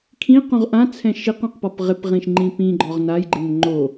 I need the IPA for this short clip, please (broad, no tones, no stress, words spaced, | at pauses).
kʰĩqũʁ ʔãt͡sʰɛ̃ ʃiqũqpɔp ʁɪpʁĩʃŋ͡ǃĩ pĩɡ͡ǃɔʁ najɡ͡ǃɪn ŋ͡ǃo